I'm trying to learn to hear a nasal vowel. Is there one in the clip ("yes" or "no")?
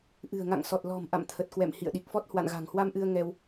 no